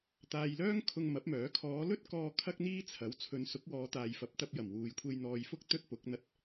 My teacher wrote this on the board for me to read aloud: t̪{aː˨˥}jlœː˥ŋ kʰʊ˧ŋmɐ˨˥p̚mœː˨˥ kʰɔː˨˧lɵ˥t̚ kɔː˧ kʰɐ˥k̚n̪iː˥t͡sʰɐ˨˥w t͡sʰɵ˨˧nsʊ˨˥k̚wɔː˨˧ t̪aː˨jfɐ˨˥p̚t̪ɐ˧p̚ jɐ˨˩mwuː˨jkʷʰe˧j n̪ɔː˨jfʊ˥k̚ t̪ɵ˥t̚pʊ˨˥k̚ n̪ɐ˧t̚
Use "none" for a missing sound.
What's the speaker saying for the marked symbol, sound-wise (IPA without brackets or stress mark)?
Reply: aː˨